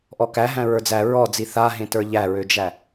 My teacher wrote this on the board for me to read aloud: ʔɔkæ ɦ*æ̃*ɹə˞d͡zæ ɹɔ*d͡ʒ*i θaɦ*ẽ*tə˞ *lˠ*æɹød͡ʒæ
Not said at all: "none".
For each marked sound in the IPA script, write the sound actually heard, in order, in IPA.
æ̃, d͡z, ẽ, ʎ

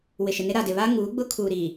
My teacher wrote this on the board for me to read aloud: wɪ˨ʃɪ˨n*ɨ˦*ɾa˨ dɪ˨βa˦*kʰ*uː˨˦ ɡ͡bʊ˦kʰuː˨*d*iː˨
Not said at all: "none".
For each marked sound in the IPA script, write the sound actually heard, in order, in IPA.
ɪ˦, ŋ, ɾ

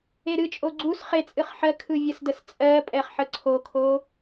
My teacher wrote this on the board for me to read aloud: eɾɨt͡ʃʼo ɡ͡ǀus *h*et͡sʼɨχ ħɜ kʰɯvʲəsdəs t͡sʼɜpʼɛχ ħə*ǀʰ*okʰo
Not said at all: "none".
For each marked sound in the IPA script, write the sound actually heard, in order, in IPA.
χ, ǀʰ

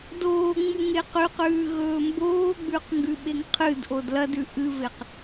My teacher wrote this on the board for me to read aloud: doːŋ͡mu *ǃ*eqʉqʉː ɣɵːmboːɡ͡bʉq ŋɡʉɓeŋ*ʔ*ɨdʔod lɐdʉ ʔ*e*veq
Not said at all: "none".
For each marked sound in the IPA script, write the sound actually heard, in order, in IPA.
ŋ, qʰ, ɨ

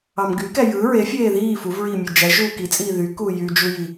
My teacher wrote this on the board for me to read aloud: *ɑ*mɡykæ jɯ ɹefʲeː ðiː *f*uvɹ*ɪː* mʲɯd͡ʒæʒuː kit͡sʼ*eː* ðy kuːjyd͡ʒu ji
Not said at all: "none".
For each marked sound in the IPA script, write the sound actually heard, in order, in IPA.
ɑ, f, iː, iː

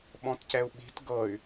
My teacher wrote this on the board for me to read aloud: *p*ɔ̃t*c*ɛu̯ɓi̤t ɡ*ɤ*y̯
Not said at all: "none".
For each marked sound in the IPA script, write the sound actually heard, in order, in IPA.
ɓ, c, ɤ

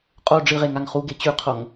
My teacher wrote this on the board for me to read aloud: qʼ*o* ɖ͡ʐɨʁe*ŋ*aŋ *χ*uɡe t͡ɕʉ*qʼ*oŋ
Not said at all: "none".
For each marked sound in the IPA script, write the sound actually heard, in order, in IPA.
o, ŋ, χ, qʰ

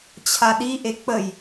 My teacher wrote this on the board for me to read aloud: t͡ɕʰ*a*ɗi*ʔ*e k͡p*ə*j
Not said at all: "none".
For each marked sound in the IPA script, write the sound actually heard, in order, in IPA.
a, ʔ, ə

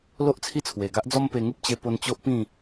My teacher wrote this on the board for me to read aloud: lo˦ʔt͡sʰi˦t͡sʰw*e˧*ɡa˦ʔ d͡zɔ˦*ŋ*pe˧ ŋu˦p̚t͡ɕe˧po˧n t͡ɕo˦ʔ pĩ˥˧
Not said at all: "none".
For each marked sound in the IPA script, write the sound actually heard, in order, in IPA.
e˨˩, m

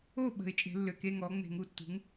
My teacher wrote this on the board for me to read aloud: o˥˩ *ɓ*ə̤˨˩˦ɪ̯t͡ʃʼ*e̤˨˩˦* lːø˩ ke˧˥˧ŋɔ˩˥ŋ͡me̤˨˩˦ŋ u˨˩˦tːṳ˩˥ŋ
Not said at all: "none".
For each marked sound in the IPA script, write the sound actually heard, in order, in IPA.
ɓ, e̤˨˩˦

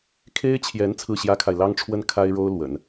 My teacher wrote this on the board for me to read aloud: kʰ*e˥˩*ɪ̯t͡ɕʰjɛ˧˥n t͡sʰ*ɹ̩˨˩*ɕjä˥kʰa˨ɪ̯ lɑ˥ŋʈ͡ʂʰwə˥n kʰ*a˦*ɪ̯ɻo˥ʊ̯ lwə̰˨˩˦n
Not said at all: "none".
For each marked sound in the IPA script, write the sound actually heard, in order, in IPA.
e˥, ɹ̩˥˩, a˥

